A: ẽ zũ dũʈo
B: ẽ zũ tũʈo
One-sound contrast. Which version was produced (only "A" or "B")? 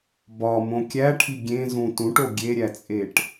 B